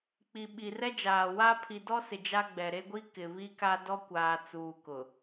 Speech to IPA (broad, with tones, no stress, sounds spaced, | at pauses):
k͡p i˨ ɓ i˨ r ɛ˦ d͡ʒ aː˨ w a˦ pʰ i˨ d ɔ˦ s ɪ˨ d͡ʒ a˦ ɡ͡b ɛ˨ ɾ e˦ ɡʷ i˦ k ɪ˨ β i˦ k a˦ d ɔ˦ kʷ aː˨ t͡s uː˨ k ʊ˨